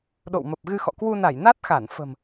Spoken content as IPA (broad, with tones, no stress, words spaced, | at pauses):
ɗo̰˧˨wmə˨˩p̚ɣɨ˧xɔ̰˧˨ kwu˧na˧˩j na˦˥t̚xa˧˩n fə̤˨˩m